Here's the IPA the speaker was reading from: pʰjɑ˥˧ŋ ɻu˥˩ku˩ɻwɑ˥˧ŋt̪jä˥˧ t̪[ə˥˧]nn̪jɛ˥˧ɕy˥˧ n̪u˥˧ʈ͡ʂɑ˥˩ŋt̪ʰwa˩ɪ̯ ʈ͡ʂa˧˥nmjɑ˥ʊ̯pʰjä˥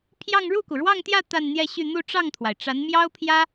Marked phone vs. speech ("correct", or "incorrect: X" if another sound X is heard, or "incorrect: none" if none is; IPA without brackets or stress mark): incorrect: a˥˧